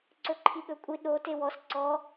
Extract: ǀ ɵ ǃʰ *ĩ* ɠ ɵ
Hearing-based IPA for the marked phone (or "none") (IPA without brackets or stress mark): i